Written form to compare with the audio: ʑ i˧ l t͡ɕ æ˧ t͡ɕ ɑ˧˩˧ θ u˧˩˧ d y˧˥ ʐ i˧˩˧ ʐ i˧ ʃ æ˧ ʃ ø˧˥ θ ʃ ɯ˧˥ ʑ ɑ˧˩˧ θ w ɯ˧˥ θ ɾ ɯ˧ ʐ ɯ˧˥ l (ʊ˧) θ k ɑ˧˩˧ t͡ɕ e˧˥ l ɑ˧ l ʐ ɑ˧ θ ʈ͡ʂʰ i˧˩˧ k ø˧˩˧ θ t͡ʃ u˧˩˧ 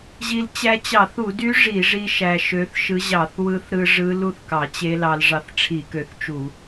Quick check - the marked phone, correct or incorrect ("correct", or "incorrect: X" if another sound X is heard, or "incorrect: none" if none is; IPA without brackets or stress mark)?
incorrect: u˧